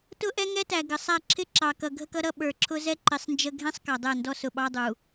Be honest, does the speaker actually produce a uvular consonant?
no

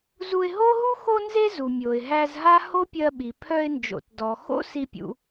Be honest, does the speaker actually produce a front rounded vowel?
yes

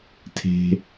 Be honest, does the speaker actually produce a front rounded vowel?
no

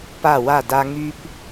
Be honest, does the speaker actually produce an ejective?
no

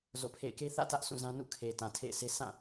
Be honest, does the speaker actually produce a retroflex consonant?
no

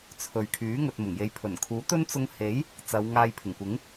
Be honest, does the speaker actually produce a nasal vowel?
no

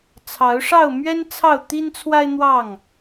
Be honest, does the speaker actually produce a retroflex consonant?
yes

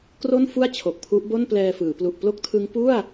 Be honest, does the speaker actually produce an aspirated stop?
yes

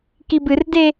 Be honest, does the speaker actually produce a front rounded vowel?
no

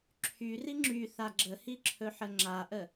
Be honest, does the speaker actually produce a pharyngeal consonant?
yes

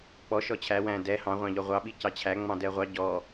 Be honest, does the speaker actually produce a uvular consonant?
yes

